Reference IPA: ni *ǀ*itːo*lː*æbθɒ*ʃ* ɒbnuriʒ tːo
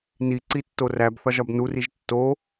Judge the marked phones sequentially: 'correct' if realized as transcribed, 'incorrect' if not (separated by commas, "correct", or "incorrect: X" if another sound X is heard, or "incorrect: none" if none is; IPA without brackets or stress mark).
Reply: correct, incorrect: r, incorrect: ʒ